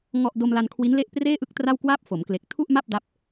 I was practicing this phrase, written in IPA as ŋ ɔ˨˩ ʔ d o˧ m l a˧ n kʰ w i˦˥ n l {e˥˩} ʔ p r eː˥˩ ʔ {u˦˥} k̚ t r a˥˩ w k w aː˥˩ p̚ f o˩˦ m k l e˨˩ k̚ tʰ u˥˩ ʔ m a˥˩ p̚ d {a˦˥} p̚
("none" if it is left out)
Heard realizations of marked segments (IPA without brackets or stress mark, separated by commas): e˥˩, ɯ˦˥, a˦˥